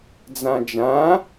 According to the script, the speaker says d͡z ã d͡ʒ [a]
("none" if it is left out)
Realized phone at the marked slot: ã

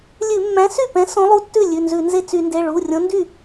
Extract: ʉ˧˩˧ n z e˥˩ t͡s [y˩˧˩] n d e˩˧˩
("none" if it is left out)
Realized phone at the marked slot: y˧˩˧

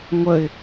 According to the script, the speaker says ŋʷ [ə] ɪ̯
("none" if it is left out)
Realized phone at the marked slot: ə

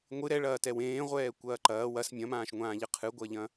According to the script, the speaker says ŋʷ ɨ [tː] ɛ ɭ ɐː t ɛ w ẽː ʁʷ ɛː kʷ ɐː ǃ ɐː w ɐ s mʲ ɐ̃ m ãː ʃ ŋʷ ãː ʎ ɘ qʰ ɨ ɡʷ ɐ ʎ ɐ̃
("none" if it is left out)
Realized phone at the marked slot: ɾ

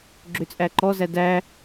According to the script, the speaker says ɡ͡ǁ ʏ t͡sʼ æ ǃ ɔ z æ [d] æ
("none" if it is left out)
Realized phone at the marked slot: d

